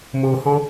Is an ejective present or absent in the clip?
absent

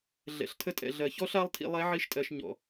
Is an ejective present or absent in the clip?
present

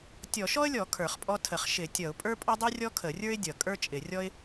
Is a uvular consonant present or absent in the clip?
present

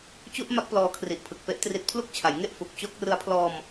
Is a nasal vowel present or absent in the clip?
absent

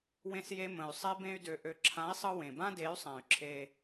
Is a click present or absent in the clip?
present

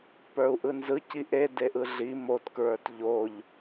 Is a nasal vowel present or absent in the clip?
absent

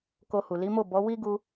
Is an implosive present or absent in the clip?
absent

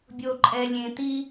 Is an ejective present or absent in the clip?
present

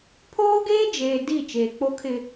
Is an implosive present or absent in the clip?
absent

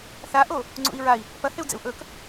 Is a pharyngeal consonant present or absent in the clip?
absent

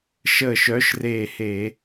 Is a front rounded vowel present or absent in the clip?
present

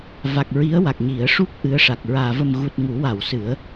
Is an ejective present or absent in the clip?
absent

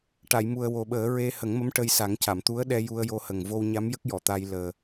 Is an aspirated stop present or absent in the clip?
absent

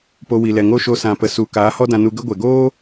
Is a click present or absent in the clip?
absent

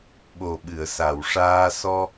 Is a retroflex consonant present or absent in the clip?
present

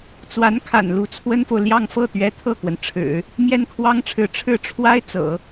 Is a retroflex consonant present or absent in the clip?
present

